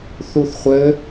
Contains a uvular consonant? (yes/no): yes